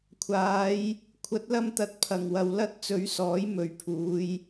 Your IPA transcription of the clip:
kʷʰaː˨˧j | kʷʰɐ˨˥t̚lɐ˧mt̪ɐ˨˥t̚ pʰɐ˨˩ŋwɐ˨w lɐ˥t̚ t͡sɵ˨˥ɥsɔː˨˥j mɵ˨ɥpʰuː˨˧j

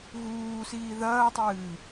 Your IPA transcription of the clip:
ɣuː siːðɐːtˤɨː

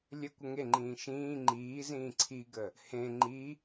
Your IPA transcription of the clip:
lʲə kʷəŋeŋ͡ǃĩː ʃĩː ŋ͡ǃiːzĩː ǀʰiɡə | hẽ ŋ͡ǃi

